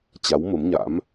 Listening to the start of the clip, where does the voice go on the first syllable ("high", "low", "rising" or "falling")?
rising